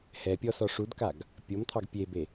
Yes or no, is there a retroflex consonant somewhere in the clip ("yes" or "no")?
yes